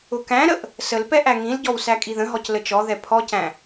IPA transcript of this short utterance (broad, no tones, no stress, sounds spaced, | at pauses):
ʊ k æ̃ ɾ ə ʔ | s ə l p ɛ ʔ æ ŋ ĩ l ɟ ɔ w s æ kʼ i ð ə̃ ɦ ɔ c l ə t͡ʃ ɔ ð ɛ pʰ ɔ c æ̃